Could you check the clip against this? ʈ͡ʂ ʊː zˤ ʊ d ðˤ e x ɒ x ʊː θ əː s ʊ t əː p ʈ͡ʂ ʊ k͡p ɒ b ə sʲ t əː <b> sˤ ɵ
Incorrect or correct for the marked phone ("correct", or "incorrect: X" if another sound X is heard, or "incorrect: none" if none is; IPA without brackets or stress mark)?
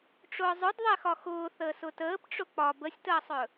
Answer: incorrect: none